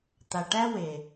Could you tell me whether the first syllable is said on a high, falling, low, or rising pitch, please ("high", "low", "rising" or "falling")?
low